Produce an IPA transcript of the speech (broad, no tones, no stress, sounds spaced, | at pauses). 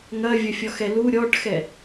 ŋ ɐ vʲ ɐ fʲ ɔ x ɛ l u ɾʲ ɔ ʈ x ɛ